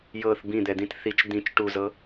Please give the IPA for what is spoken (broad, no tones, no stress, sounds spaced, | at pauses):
j ɤ θ b ĩ d̪ ɛ d̪ ĩ t θ i t͡ʃ d̪ ĩ t͡ʃ ʈ u z ɤ